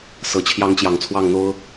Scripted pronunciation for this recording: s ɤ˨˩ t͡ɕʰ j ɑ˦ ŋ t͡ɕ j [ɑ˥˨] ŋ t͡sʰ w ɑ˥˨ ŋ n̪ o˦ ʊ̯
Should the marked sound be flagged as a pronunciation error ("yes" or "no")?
yes